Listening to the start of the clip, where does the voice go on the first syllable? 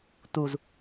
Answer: low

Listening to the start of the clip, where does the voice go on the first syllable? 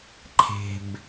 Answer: low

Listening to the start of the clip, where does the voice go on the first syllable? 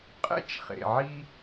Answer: high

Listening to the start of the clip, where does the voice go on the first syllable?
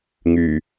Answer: low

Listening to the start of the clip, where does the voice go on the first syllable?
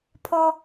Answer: high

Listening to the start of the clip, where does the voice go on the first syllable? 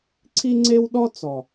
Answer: high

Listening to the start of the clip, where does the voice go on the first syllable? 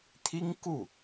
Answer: high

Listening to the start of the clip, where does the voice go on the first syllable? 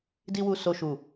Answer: high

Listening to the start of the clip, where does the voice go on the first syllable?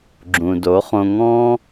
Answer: low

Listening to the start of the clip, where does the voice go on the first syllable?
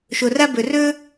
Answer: low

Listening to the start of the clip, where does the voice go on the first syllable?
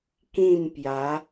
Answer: falling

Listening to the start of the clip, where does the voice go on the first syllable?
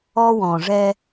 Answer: high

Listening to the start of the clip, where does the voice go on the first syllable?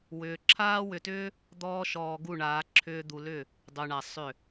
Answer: low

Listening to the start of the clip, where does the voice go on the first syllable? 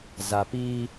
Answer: low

